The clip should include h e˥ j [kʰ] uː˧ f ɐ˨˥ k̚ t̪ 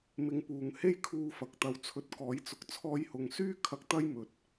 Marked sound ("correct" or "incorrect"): correct